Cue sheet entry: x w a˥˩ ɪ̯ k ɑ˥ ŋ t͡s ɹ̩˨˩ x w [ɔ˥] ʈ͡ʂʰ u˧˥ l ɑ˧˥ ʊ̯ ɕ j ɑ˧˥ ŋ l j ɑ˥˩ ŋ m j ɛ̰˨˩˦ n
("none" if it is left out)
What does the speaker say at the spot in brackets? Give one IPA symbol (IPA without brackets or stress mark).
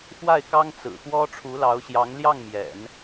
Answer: ɔ˥